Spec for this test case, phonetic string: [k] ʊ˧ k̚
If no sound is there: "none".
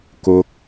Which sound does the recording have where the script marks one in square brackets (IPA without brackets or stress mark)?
k